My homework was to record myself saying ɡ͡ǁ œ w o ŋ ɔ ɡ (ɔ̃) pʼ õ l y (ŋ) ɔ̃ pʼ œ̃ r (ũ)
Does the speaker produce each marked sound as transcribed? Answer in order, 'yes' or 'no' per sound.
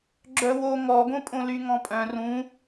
no, yes, yes

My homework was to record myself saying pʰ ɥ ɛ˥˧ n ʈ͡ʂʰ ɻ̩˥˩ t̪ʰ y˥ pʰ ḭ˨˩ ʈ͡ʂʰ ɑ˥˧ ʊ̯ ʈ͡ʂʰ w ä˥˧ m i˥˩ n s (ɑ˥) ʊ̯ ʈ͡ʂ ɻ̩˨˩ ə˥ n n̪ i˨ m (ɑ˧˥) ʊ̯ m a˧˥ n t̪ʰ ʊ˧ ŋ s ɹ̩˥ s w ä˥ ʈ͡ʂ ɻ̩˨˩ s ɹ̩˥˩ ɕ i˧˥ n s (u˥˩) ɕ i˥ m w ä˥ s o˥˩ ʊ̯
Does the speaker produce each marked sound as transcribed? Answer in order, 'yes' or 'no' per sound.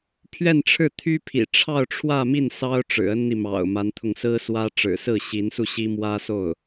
yes, no, yes

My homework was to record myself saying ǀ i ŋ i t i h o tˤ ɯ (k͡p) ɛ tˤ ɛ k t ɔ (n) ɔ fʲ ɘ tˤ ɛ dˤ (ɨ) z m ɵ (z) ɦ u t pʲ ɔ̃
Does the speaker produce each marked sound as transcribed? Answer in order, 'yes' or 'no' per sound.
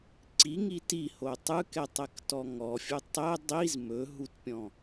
no, no, no, no

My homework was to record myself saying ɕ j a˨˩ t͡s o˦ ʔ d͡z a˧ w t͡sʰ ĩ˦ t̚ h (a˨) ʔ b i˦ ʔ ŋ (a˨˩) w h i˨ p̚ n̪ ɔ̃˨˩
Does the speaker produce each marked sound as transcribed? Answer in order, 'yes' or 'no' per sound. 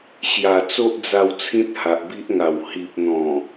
yes, yes

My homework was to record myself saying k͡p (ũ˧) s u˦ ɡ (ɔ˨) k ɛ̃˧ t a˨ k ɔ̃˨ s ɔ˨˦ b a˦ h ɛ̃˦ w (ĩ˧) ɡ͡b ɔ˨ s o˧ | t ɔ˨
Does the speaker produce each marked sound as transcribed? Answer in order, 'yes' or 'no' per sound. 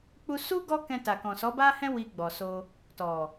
no, no, no

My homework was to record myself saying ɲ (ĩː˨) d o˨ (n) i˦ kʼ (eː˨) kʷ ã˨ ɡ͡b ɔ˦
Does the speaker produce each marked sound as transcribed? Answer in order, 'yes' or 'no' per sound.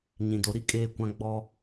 no, no, yes

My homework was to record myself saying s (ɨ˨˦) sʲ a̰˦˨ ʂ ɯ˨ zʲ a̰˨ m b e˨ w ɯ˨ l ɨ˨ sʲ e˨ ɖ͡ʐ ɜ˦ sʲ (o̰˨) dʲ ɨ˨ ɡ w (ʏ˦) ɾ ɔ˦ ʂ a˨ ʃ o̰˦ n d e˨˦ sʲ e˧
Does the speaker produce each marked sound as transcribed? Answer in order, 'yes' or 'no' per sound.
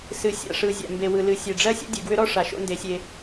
yes, no, yes

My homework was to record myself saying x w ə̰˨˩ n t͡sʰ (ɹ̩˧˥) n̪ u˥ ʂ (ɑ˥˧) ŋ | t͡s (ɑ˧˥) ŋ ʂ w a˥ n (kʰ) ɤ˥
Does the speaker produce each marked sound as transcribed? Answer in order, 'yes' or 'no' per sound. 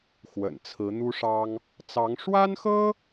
yes, no, yes, no

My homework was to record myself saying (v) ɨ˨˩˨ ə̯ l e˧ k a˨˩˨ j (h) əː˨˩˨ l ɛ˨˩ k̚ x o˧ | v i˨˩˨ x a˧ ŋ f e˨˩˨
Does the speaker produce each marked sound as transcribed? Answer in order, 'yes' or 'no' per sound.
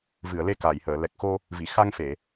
yes, yes

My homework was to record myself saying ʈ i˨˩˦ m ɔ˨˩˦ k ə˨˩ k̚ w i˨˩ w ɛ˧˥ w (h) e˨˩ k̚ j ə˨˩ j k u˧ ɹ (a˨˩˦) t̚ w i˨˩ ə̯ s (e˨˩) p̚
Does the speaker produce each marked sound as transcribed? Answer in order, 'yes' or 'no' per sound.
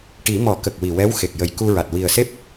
no, no, no

